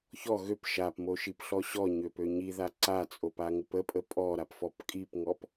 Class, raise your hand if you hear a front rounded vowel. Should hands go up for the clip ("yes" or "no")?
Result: yes